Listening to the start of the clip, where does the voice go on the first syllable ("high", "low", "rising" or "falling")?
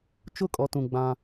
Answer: falling